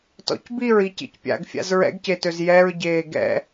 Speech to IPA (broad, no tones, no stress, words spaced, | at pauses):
tɔ̰cbiɹi cḭcpʲa̰ɡfʲa̰z ɹɛ̰ɡcetøz jɛɹ ɟeːɡɛ̰